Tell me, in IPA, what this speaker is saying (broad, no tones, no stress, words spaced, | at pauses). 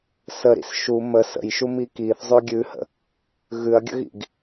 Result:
səɾḭs ʃu mə sə̰jʃumi kiθzˤʉ ɡʲʉhə̰ | ɣʉɐ̯ɡʲə̰ɣḭɡ